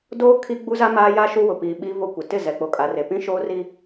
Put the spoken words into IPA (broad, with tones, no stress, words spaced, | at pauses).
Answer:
doː˦ kʰi˦ ɡ͡bu˦za˦ maː˦ja˦ʃu˦wʊ˨ piː˨ɓi˦vo˦kʷɪ˨ tɪ˦˨ zɛ˨k͡po˨kʼa˨re˨ pĩ˦ʃoː˦ri˦